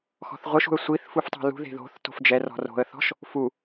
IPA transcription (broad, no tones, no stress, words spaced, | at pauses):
xɔ̤θʁʷɯʃṳə̯ sʷiθ fuftˤo̤lṳðe̤ ðo̤θ to̤fd͡ʒɛrɔ̤ ro̤ə̯θɔ̤ʃ | fu